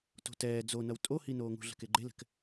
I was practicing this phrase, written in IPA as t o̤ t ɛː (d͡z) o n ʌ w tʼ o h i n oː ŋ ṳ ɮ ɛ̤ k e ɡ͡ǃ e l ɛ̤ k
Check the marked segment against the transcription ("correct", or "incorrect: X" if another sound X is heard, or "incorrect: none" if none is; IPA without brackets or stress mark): correct